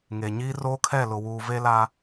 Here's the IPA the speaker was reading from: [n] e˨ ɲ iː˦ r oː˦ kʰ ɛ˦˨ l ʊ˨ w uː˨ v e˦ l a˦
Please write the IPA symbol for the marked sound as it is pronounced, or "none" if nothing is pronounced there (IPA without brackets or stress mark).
ŋ